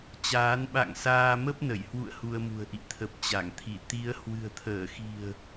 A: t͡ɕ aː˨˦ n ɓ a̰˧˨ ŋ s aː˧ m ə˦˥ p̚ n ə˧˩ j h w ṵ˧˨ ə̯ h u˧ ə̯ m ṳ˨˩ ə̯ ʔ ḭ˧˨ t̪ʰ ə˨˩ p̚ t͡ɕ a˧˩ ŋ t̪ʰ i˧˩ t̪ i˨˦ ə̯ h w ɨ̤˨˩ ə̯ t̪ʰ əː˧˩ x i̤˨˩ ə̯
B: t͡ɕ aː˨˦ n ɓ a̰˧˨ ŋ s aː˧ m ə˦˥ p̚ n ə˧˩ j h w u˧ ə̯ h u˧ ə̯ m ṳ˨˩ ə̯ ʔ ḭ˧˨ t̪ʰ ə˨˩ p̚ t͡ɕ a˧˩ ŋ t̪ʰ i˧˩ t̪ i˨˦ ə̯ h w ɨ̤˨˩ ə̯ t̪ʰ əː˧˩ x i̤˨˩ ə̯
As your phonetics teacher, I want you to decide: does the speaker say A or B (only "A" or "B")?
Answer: A